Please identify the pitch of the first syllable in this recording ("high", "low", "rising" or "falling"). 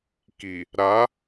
low